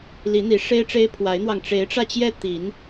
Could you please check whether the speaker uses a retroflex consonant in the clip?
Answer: yes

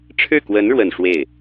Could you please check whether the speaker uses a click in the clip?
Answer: no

